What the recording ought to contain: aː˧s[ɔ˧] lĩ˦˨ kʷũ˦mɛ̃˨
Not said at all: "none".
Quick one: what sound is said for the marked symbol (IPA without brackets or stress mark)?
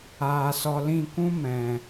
ɔ˧